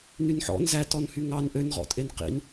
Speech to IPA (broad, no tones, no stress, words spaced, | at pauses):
nynħɔ̰n zætɔnhy ŋɑn ʔønʁɔ̰tʼen qḭn